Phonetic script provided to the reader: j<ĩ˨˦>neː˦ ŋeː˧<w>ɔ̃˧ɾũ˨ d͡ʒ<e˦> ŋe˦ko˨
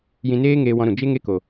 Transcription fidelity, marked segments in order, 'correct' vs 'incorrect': incorrect: ĩ˧, correct, correct

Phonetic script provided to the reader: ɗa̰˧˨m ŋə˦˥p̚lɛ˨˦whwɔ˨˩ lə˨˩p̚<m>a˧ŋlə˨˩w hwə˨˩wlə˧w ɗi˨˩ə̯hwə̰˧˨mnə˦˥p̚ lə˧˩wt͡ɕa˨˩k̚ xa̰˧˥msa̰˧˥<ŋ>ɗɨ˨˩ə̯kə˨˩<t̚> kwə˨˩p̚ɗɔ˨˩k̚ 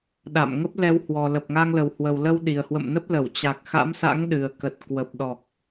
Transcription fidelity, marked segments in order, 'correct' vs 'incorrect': incorrect: ŋ, correct, correct

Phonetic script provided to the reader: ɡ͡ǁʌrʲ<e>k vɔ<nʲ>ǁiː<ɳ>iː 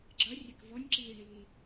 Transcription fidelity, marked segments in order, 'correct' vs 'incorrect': incorrect: ɛ, correct, correct

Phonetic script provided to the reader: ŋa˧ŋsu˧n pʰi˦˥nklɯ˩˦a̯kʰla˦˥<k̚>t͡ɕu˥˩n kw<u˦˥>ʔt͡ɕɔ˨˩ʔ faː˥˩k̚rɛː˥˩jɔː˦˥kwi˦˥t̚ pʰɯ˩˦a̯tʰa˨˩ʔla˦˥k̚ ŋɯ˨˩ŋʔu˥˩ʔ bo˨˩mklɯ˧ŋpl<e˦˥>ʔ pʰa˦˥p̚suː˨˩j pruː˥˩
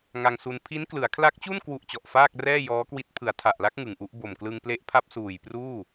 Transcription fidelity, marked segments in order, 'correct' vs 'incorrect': correct, correct, correct

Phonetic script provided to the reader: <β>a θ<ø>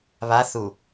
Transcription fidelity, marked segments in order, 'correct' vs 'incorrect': correct, incorrect: u

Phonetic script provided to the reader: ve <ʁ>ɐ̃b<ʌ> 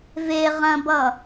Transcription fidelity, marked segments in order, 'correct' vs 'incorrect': correct, correct

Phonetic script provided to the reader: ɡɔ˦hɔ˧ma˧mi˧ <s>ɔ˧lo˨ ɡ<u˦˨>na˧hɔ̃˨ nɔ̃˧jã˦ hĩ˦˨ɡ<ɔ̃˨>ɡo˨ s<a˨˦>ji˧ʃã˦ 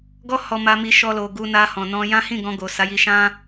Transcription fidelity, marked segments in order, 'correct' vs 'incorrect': incorrect: ʃ, incorrect: u˧, incorrect: ɔ̃˧, correct

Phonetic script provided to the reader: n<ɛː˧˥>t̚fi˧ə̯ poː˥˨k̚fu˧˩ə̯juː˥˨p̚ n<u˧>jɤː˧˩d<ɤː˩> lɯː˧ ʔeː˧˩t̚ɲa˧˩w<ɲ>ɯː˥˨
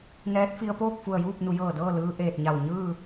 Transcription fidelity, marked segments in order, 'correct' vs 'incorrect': correct, incorrect: u˩˧, incorrect: ɤː˥˨, correct

